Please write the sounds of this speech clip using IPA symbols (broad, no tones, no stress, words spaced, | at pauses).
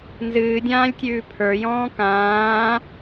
nzɨːdʲãːlʲtʲʉː pʰə˞jɔ̃ː kãː